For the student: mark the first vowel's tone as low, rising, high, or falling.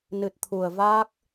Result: low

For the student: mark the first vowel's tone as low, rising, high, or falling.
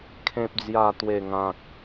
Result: low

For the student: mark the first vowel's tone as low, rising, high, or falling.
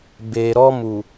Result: low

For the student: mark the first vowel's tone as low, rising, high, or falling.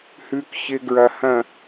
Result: low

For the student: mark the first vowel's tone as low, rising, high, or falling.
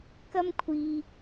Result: high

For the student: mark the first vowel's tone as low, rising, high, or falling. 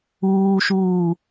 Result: high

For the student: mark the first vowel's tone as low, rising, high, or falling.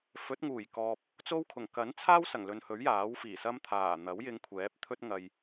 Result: rising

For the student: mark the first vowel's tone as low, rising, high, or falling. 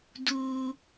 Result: high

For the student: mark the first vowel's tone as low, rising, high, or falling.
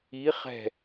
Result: rising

